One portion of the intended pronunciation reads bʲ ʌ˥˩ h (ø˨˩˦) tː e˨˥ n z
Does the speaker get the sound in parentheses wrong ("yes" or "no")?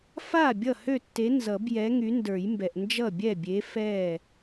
yes